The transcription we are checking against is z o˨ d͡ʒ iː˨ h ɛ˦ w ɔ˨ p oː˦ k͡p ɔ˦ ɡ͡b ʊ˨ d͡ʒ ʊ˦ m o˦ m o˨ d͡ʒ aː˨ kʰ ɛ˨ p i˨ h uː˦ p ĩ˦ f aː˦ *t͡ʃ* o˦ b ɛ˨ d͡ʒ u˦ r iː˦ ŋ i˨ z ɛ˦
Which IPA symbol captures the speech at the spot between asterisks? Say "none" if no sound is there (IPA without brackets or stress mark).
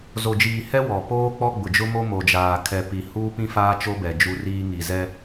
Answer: t͡ʃ